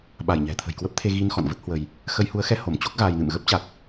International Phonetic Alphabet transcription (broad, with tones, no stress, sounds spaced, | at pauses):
ɓ a˧˩ j ɲ ɛ̤˨˩ t̪ʰ ə̤˨˩ j k w ə˦˥ p̚ t̪ʰ e˧ ɣ i˧ n x ɔ̰˧˨ n v ə˦˥ t̚ h w ə˧ j | x ə˧ j h u˨˦ ə̯ x ɛ˧ h o˧˩ m t͡ɕ o˦˥ k̚ ɣ aː˧ j n ɨ̰˧˨ m ɣ ə˦˥ p̚ t͡ɕ a˨˩ k̚